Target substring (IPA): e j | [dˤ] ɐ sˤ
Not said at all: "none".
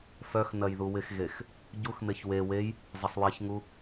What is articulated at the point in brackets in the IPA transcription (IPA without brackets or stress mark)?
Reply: zˤ